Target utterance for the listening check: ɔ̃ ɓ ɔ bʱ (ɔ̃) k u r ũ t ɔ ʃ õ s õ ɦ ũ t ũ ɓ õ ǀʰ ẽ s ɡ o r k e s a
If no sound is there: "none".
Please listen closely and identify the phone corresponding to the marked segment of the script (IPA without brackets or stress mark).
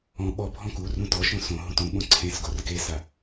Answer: ɔ̃